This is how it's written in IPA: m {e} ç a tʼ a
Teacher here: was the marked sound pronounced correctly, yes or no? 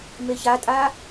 yes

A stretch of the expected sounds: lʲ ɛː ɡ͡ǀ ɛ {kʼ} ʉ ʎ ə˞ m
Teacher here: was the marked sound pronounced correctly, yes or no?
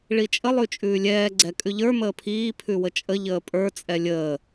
yes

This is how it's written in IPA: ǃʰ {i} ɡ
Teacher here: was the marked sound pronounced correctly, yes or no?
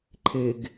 no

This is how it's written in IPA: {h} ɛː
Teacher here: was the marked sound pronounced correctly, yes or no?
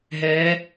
no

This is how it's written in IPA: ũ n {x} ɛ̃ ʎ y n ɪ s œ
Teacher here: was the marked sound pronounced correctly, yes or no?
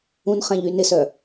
no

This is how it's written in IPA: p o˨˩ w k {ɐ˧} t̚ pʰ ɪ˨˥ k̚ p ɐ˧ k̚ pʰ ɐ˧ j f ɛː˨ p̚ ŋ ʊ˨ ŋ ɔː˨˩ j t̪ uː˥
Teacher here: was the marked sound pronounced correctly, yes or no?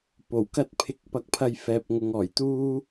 no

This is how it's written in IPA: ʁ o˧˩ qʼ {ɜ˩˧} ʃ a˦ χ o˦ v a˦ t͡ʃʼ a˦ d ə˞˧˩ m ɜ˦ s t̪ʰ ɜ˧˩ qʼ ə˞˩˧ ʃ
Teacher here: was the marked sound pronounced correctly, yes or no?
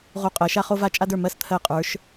yes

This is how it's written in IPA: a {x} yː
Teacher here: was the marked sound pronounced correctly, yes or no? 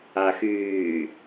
yes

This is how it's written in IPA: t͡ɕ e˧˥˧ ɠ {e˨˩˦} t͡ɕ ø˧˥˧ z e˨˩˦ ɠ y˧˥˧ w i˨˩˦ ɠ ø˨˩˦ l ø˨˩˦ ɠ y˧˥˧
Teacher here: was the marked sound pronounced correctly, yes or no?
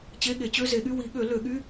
yes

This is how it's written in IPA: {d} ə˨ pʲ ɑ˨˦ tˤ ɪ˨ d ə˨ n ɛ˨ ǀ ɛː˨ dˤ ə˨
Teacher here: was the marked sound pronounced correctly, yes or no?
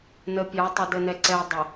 no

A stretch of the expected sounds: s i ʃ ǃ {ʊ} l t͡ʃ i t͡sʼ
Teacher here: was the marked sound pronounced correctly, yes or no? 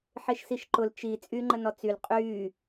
yes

